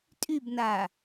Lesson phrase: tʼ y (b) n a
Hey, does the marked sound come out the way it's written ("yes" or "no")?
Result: yes